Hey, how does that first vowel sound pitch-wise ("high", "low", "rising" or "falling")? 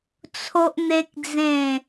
high